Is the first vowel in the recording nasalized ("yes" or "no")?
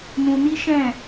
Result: yes